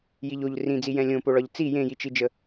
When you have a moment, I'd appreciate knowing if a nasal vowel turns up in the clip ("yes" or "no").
yes